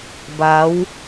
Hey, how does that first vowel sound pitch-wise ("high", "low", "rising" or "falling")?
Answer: rising